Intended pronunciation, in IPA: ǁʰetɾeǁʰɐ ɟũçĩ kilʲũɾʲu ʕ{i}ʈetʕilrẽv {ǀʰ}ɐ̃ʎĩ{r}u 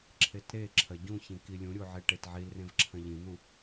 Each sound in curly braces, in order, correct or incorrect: incorrect, incorrect, incorrect

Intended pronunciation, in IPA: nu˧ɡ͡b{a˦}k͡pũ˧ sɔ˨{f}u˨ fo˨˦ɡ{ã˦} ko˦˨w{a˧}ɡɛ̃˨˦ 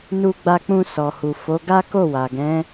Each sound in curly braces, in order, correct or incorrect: incorrect, incorrect, incorrect, incorrect

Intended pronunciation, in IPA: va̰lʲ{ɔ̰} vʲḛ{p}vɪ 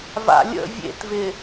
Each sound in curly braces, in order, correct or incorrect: incorrect, incorrect

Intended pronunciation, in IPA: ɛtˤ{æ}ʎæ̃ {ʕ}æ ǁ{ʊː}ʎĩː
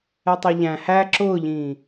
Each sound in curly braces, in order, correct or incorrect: incorrect, incorrect, correct

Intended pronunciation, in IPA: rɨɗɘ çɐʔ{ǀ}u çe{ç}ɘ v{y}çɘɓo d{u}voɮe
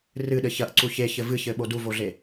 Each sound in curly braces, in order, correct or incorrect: correct, correct, incorrect, correct

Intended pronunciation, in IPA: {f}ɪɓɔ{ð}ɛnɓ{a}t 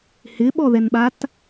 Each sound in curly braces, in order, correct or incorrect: incorrect, correct, correct

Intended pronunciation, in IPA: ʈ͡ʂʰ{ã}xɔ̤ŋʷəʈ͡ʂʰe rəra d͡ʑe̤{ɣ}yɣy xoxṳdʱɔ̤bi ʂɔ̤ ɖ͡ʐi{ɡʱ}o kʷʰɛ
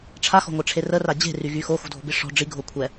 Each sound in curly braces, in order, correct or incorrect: incorrect, incorrect, correct

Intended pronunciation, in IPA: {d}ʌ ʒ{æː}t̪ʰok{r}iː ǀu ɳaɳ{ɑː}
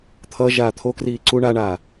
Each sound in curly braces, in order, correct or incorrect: incorrect, incorrect, correct, incorrect

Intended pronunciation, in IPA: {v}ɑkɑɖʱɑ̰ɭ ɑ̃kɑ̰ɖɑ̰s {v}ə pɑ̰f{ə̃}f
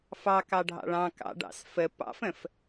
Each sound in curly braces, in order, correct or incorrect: incorrect, incorrect, correct

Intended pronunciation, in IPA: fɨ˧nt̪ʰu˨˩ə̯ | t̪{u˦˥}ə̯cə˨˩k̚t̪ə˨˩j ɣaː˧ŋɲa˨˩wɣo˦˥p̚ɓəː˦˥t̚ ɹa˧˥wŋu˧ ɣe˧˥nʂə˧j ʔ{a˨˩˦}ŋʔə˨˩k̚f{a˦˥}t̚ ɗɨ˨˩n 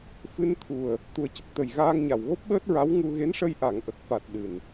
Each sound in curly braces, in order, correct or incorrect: incorrect, incorrect, incorrect

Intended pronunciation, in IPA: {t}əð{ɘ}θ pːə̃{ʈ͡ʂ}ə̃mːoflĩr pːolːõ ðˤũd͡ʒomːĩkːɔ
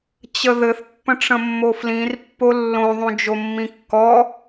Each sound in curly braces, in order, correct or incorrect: incorrect, correct, correct

